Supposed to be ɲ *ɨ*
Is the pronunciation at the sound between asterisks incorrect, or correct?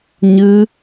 correct